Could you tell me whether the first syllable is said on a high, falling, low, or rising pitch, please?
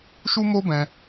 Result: high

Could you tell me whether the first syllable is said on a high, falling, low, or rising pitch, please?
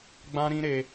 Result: high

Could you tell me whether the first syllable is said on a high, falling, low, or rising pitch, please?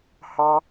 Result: high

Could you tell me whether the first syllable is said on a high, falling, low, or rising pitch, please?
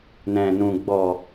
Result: low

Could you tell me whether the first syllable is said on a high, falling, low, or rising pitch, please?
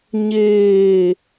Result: falling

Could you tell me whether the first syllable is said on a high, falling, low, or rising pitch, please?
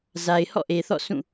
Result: low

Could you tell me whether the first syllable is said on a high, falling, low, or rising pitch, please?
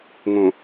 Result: low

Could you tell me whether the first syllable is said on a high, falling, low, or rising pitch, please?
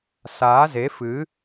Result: rising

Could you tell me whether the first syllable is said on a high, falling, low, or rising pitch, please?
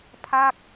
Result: falling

